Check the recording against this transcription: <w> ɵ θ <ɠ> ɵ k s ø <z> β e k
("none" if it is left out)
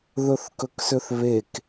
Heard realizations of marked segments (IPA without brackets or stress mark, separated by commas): ð, k, θ